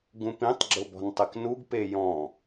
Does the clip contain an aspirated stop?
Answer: no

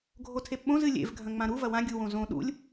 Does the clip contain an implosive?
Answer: yes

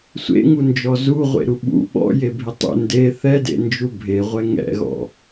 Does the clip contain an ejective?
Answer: no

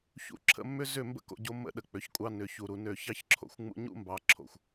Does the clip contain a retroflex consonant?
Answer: no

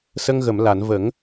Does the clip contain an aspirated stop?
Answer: no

